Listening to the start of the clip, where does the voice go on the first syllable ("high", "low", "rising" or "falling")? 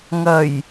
low